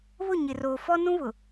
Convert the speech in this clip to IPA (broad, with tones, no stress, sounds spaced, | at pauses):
β ʊ˦˨ ɲ ɪ˨ r oː˨ f ɔ˦ n ũ˦ β ʊ˨